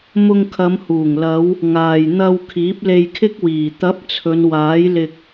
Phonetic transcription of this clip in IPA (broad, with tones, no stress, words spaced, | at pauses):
mʊ˧ŋkʰɐ˨˧mhuː˨˩ŋlɐ˨˧w | ŋaː˨jn̪ɐ˧w kʰiː˨˥p̚le˧jkʰɪ˥k̚wiː˨˩ t̪ɐ˨˥p̚ t͡sʰɵ˨˧nwaː˨˥jlɪ˧k̚